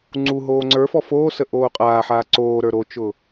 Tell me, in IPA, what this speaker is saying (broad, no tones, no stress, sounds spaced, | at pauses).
ŋ͡ǀ u ɦ oː ŋ͡ǀ ə˞ f ɔ f oː s ə ʔ oː qʼ aː ħ aː ǀ oː ɾ ə˞ ɾ o t͡ʃ ʊ